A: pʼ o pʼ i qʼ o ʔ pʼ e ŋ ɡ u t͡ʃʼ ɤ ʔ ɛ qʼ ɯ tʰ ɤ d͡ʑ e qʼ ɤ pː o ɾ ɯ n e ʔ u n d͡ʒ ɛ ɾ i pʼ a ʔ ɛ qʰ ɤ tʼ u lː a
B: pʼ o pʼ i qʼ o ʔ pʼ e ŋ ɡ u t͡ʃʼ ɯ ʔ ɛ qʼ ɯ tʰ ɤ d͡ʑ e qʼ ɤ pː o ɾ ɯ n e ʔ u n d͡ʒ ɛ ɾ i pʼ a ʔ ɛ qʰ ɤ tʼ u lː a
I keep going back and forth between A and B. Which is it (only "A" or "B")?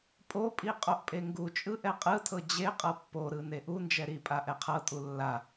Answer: B